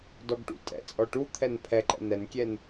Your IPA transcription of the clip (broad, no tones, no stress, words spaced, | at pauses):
dɔɡʈṵtʼɛ̰t͡sʼɔ ʈu t̪ʰɛnpʰɛǃɛ̰ nɛnkʲɛn